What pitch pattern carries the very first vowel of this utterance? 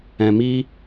low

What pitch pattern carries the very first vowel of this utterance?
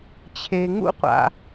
low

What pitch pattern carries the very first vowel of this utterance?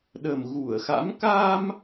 low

